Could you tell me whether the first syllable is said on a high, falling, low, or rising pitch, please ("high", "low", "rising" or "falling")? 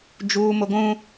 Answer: high